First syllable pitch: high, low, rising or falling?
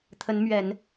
rising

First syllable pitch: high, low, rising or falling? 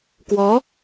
rising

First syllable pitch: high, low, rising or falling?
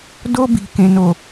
high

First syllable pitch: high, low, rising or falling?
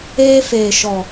high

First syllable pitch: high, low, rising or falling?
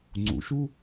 rising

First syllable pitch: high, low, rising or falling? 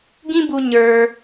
high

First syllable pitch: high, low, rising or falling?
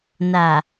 low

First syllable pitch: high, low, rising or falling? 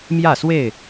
falling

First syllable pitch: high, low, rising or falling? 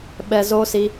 low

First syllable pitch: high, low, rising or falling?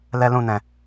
high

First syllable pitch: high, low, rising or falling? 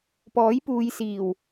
rising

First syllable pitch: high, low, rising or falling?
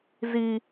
high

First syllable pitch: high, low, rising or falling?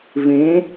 rising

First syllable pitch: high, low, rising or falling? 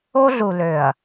high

